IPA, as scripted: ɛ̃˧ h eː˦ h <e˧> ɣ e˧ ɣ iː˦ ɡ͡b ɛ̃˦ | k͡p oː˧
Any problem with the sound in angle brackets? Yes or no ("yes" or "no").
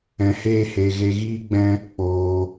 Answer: no